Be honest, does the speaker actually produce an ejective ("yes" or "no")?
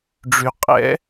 yes